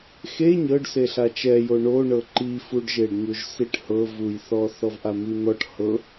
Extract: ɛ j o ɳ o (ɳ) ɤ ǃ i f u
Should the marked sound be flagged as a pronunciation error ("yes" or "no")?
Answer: no